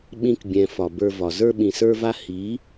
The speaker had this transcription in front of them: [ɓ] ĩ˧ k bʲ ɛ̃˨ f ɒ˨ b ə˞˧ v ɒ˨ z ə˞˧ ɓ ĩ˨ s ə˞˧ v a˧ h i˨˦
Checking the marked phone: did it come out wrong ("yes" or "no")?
no